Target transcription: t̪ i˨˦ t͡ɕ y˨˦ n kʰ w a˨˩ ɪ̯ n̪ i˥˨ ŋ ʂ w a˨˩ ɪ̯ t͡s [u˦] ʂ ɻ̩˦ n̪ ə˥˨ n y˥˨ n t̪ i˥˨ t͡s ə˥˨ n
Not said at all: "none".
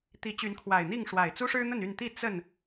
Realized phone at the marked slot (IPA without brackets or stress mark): u˦